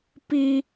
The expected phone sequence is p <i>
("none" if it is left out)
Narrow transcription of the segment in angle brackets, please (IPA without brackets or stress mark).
i